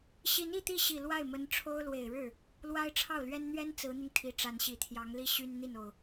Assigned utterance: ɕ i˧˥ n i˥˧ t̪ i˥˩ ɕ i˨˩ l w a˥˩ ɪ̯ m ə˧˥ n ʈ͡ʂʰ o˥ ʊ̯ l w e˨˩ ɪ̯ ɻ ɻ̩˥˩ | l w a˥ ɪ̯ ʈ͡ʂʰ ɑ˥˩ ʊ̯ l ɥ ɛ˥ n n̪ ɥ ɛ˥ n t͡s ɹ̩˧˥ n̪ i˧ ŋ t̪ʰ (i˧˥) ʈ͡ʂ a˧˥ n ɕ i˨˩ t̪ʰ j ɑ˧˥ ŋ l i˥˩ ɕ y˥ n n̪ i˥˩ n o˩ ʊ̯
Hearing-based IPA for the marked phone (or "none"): i˧˥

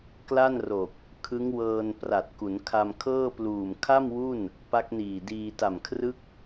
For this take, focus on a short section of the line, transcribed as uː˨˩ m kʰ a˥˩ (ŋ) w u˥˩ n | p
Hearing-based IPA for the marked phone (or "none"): m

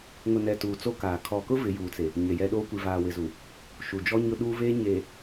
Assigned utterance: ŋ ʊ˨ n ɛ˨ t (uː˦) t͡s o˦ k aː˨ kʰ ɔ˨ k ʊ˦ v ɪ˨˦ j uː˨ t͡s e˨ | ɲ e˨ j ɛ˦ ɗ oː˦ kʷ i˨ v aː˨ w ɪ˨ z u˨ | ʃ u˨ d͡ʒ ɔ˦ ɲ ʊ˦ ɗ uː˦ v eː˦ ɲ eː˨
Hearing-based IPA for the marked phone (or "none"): uː˨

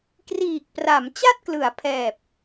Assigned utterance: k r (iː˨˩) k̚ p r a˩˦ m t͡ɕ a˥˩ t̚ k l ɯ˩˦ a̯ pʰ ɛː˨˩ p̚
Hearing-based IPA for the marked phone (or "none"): iː˨˩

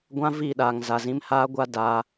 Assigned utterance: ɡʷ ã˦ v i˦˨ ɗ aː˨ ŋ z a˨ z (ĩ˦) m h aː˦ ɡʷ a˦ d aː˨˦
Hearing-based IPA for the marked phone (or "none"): ĩ˦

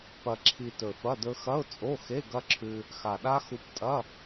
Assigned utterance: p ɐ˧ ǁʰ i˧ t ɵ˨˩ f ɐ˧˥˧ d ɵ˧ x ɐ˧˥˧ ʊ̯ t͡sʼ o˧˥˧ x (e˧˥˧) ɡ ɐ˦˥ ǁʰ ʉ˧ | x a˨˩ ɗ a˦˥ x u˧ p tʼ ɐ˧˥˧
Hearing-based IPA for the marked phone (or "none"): e˧˥˧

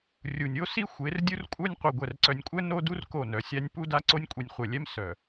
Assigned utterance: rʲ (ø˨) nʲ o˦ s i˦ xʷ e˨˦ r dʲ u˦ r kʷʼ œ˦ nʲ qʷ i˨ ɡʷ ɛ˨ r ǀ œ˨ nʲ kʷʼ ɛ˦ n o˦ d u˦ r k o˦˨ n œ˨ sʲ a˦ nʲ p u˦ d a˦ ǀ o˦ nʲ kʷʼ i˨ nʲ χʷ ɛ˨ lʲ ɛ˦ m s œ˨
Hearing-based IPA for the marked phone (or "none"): u˨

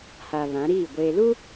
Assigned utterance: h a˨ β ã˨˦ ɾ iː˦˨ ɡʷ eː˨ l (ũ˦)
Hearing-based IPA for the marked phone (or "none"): u˦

